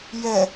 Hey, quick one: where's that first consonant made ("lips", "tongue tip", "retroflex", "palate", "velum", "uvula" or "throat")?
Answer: palate